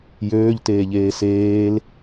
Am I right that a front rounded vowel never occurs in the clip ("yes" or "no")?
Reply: no